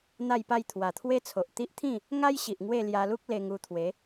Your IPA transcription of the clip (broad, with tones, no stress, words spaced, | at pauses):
n̪a˥˧jpa˥˧j t̪ʰwa˨˩t̪ʰwe˦t͡sʰo˨ʔ t̪i˦ʔt̪ʰĩ˥˧ | ŋa˦jɕi˨ʔ ŋwe˥˧ lja˧lu˦k̚ le˧ŋu˧t̪ʰwe˨˦